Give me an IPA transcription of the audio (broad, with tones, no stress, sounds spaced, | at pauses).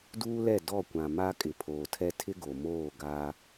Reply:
d uː˦ l ɛ˦˨ d ɔ˦˨ kʷ ã˨ m a˦ kʼ ɪ˨ pʰ oː˨ tʰ ɛ˦ tʰ ɪ˦ ɡ o˨ m oː˦˨ ɡ a˦